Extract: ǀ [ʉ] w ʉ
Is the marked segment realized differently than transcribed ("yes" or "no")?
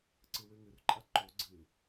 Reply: yes